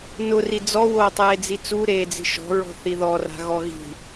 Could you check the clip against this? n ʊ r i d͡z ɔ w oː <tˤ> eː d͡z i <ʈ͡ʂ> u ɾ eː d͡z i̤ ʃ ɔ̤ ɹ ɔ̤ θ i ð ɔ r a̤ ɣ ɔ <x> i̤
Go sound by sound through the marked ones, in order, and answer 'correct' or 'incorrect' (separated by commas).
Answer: correct, incorrect, incorrect